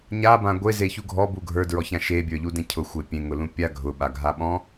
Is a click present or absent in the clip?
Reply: absent